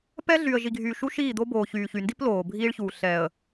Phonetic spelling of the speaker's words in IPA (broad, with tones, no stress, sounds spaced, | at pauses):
p ɛ˦ ɮ y˨ ə̯ ʒ i˨ ɡʱ yː˨ ʃ u˦ ʃ iː˦˨ d̪ o˦ b oː˨ ç yː˨ ç y˨ n d i˦ p l oː˨ bʱ iː˦ ɭ ç uː˨ ɬ ɛː˨ ə̯